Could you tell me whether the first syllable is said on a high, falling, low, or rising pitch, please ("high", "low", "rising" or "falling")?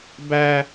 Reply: high